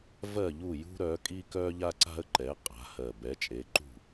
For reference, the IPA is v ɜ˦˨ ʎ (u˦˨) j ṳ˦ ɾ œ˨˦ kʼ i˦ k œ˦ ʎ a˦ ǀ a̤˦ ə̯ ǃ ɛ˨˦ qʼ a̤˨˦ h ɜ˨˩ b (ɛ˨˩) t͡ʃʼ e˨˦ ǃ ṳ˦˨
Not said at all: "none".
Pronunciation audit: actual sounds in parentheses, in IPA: u˦˨, ɛ˨˦

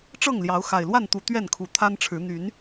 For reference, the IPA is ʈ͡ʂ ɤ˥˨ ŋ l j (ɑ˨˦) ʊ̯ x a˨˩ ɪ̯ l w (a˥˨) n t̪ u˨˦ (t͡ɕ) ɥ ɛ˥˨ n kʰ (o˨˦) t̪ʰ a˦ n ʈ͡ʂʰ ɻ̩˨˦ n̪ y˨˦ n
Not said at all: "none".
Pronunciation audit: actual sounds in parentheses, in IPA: ɑ˨˦, a˥˨, t̪, u˨˦

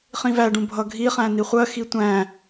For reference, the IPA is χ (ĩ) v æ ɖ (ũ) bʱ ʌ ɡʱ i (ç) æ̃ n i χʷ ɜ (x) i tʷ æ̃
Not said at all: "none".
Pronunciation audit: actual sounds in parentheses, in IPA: ĩ, ũ, χ, x

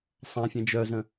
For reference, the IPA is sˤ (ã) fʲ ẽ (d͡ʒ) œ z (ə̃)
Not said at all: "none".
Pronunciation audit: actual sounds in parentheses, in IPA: ã, d͡ʒ, ə̃

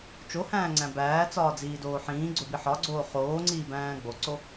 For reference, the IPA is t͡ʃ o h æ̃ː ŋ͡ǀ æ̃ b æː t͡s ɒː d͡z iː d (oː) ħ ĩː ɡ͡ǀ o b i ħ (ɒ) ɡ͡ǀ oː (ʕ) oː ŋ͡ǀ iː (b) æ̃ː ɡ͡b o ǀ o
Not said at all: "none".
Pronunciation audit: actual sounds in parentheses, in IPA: oː, ɒ, χ, b

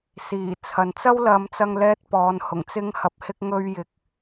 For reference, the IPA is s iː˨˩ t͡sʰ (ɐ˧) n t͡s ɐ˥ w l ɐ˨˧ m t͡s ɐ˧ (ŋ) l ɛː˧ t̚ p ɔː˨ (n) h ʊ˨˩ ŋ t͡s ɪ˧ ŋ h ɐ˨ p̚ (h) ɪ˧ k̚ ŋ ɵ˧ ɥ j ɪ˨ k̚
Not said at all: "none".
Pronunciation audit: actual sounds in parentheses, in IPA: ɐ˨, ŋ, n, h

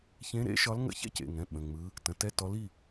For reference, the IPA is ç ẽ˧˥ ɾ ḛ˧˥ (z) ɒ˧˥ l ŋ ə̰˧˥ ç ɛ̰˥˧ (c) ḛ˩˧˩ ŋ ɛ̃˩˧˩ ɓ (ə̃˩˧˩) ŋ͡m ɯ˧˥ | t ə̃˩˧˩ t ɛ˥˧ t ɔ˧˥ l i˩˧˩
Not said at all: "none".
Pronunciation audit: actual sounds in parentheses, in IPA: ʃ, c, ə̃˩˧˩

